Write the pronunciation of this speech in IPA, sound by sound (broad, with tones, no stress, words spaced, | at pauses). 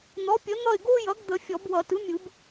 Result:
n̪ɔ˩˥pʲə˩˥ n̪ʌ˦˨ɪ̯ɡo˥ jʌ˩˥ɡd̪ə˨˩˦ fʲɔ˨˩˦bwʌ˨˩˦ tɯ˩˥mʲɯ˨˩˦b